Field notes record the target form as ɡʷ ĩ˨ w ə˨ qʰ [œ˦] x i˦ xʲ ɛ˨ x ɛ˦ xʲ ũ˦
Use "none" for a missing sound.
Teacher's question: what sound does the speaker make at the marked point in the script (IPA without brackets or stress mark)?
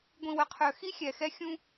œ˨